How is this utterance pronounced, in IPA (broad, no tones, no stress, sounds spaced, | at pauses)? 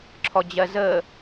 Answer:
ǁʰ ɔ d͡ʑ ɜ z ə